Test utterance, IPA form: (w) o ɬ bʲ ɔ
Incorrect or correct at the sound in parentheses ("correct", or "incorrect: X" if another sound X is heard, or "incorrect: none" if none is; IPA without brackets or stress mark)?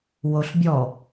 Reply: correct